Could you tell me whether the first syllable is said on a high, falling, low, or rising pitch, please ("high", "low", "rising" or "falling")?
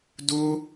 high